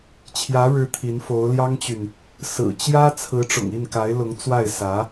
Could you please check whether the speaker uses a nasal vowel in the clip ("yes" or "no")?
no